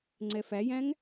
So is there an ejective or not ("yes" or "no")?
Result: no